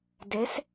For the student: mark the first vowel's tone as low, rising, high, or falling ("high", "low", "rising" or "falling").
rising